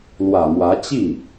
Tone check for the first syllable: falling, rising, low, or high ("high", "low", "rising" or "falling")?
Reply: low